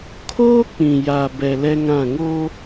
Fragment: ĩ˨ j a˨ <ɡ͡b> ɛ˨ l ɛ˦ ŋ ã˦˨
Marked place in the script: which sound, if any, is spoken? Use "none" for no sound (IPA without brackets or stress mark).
b